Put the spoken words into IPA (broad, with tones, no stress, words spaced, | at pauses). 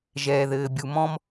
ʒɛː˨ðɘː˨bʲu˨mɔ̃˦m